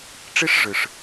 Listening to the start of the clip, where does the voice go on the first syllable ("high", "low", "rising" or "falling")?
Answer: high